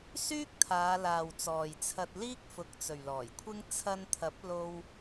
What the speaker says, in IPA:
s yː˥ k̚ t̪ʰ aː˨˧ l aː˨ w t͡s ɔː˨ j t͡sʰ ɐ˧ t̚ l iː˥ k̚ f ʊ˨˥ k̚ t͡s ɵ˨ ɥ l ɔː˨˩ j kʷʰ ɪ˥ ŋ t͡sʰ ɐ˧ n t̪ʰ ɐ˨˥ p̚ l o˧ w

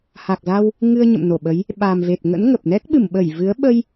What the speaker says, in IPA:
h a˨˩ k̚ z a˧ w | ŋ ɨ˧ ə̯ ɲ ə̰˧˨ m n o˧˩ ɓ ə˨˦ j | ɓ a˨˩ m v e˨˩ t̚ ŋ ə̰˧˥ n ŋ ə˨˩ p̚ n ɛ˦˥ k̚ ɓ ɨ˧˩ m ɓ ə˧˩ j v ɨ˨˦ ə̯ ɓ ə˧ j

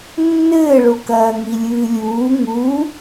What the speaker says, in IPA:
nː ɘː ɭ o k ɐː ŋ i lʲ ɨː lʲ uː ŋ u

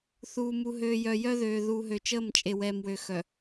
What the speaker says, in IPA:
θ uː˨ m u˨ ɦ øː˨ j œ˨ j œ˦ ð øː˨ ð uː˨ ɦ ø˨ t͡ʃ əː˦˨ m t͡ʃʼ e˨ w ɛː˨ m w ø˨ x œ˨

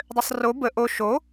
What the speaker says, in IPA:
dˤ ø sˤ r o b ə ʔ o ʃ o

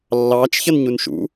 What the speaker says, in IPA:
lː ɑː t͡ʃ ç ʌ n ɲ u n ʃ ṵ

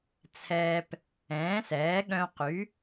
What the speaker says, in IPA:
t͡sʰ ɛː˧ p | ɛ̃ː˩˥ s ɛː˩˥ ɠ œ̃˧ q y˩˥

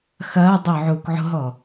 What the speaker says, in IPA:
x ɐː dˤ ʊː ʕ uː k ʕ o̤ ɦ ɔ

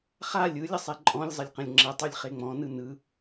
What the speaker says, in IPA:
χ a lʲ ɯ lʲ ə sˤ e ǃʼ ɔ̃ lʲ zˤ ə lʲ q ə̃ lʲ ŋ͡ǁ ə tˤ ɯ lʲ χ e ŋ͡m ɔ̃ n ɯ n ɯ

